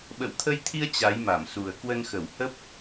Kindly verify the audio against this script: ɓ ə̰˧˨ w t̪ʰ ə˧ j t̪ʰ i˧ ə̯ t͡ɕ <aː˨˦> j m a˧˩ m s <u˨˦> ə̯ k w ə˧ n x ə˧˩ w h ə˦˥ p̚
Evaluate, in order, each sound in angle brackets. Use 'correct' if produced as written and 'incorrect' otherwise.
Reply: incorrect, incorrect

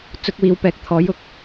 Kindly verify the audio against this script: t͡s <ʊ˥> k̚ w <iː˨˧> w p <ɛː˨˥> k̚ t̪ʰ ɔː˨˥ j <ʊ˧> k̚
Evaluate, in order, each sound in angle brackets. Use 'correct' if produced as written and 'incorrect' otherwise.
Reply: incorrect, correct, correct, incorrect

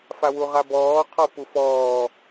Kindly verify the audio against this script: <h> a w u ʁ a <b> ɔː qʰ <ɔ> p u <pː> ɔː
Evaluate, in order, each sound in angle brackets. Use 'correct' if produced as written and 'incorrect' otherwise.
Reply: incorrect, correct, correct, incorrect

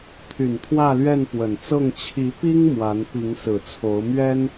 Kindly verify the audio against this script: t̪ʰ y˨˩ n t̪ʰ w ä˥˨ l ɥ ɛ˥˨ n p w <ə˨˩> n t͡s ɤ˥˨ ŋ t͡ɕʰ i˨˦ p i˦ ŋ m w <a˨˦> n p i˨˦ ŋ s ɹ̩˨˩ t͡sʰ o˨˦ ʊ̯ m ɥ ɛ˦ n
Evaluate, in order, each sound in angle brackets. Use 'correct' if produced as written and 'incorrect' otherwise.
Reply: correct, correct

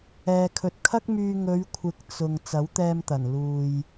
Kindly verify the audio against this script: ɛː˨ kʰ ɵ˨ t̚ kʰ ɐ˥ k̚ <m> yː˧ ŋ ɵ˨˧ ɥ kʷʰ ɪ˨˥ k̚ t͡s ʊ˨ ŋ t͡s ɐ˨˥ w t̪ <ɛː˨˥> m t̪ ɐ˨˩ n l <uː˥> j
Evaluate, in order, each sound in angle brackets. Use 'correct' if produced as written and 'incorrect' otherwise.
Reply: correct, incorrect, incorrect

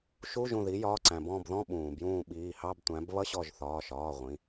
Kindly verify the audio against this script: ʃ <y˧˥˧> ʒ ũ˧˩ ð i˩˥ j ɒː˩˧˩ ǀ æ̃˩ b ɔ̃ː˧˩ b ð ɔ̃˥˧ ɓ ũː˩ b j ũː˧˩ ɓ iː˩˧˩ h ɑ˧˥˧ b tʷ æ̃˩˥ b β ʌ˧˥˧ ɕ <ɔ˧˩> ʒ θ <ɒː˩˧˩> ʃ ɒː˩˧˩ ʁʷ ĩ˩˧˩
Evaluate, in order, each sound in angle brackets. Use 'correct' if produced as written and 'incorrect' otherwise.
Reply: incorrect, correct, correct

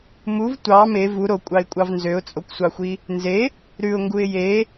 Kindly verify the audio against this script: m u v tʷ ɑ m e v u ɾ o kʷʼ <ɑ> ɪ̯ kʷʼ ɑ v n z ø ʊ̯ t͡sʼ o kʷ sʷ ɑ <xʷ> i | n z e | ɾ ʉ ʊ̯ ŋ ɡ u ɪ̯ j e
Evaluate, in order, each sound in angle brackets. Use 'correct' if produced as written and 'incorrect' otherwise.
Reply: correct, correct

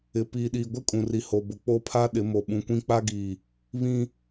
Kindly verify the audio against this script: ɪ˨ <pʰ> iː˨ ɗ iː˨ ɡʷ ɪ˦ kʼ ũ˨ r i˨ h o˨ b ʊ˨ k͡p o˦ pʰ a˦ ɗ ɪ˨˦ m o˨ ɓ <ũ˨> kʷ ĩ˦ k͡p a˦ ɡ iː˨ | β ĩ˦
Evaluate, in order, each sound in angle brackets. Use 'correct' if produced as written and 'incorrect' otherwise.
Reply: incorrect, correct

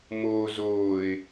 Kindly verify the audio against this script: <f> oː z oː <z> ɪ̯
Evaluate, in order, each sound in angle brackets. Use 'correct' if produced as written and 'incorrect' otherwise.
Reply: incorrect, incorrect

